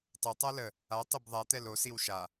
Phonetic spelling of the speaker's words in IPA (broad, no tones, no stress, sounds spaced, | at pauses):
tˤ ɵ tˤ a l ə | a tˤ ə b ðˤ a t̪ ɛ l o s i w ʃ a